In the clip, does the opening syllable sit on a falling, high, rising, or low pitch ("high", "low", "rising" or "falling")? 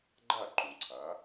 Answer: falling